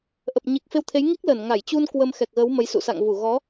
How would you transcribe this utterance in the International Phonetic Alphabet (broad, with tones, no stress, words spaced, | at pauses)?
ʔə˨˩p̚ ɲi˨˩k̚fe˧wt̪ʰe˨˦j ŋi˦˥k̚ləː˧˩n ŋa˧˩jt͡ɕu˧n kwə˧mxɛ˨˩k̚ɣəː˨˦w mə˨˦jsṵ˧˨ sa̰˧˨ŋvu˧˩ɣɔ˨˦